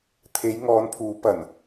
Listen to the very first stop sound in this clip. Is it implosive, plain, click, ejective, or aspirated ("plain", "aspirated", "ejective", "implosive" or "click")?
aspirated